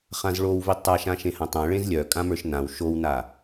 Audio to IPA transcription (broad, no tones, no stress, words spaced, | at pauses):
χãzɭowvi tˤaʃã ʃẽhãtˤãɭẽz lʲœ kʼãmə˞ʃnãw ʃowna